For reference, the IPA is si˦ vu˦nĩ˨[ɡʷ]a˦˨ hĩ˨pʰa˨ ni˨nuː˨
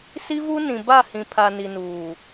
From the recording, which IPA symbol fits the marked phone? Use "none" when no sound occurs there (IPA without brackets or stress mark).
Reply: b